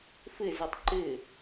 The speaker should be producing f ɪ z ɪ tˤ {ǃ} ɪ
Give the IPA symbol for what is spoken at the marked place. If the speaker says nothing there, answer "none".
ǃ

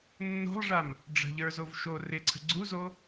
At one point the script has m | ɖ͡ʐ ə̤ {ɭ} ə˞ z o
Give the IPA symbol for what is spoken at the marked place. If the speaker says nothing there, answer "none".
ʎ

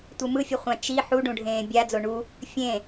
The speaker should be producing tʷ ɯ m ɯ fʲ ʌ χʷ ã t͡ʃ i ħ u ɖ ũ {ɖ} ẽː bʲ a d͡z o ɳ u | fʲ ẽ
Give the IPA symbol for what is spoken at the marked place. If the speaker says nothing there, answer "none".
ɖʱ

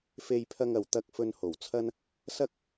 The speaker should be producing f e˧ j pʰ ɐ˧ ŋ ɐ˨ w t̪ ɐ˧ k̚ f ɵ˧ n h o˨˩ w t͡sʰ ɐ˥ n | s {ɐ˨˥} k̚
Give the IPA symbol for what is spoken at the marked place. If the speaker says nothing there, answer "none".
ɐ˥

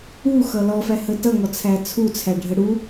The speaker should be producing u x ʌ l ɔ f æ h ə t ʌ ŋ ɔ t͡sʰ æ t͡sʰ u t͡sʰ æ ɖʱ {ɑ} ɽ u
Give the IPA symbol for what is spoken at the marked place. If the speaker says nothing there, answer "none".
ə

